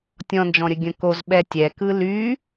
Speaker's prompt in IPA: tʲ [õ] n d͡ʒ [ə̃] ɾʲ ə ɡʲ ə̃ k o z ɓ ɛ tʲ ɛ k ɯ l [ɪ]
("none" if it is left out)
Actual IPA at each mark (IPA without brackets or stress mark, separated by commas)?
ɔ̃, ɔ̃, y